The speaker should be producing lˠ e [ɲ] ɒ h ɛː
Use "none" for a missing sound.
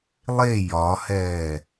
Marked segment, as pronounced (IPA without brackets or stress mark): j